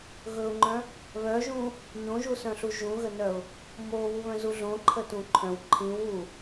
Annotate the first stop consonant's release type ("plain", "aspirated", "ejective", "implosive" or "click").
click